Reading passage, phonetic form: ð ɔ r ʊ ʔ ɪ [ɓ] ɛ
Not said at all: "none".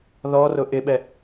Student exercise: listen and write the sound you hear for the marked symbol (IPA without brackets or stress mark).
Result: ɓ